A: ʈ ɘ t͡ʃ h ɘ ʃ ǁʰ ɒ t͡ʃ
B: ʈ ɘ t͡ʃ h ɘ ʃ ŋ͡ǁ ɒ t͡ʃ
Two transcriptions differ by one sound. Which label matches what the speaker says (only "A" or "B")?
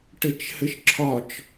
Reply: A